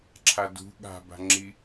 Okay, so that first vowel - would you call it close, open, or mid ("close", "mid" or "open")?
open